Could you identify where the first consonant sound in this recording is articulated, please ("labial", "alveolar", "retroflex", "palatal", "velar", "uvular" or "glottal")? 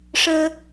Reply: retroflex